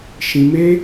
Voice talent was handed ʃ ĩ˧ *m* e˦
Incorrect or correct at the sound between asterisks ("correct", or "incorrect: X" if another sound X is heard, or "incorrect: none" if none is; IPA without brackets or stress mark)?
correct